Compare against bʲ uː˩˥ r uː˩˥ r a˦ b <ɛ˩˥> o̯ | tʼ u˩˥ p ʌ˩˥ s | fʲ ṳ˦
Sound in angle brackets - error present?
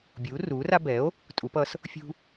no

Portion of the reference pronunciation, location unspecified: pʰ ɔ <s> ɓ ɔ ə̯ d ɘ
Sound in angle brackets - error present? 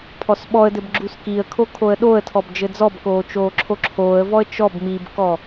no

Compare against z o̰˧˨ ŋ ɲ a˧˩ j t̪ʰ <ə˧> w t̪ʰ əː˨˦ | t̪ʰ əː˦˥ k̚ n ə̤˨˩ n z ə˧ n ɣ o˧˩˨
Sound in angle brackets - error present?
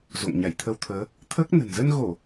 no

